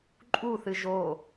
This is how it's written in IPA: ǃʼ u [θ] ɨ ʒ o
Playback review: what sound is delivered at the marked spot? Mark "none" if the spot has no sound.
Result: θ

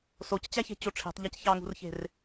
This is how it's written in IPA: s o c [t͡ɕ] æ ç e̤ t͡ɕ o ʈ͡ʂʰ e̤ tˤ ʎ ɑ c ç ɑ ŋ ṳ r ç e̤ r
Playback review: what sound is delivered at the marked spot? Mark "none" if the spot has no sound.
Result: t͡ɕ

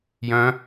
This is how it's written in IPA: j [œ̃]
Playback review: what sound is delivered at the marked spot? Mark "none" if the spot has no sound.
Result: œ̃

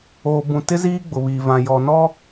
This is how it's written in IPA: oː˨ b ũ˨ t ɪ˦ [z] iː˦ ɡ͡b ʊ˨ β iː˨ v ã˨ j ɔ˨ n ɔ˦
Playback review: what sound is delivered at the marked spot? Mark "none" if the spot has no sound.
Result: z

